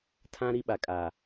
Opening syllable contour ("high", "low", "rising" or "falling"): high